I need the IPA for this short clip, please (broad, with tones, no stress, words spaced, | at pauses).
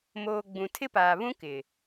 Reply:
moː˨ ɡ͡bũ˨tʰɪ˦paː˨βũ˦ kɪ˨